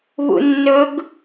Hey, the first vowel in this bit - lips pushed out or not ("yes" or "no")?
yes